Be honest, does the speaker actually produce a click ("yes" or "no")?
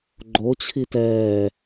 yes